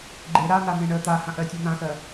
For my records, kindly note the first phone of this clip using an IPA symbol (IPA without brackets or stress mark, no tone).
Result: ɡ͡ǃ